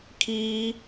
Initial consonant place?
velar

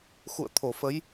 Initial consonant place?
velar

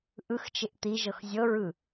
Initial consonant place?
glottal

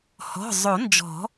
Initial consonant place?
glottal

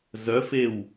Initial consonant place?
alveolar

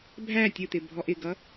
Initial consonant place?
labial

